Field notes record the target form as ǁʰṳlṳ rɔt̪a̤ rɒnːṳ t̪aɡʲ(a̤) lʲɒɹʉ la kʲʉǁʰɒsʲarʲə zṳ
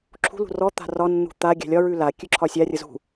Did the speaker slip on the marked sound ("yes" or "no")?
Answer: no